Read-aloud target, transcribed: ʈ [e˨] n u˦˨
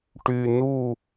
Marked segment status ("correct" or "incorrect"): incorrect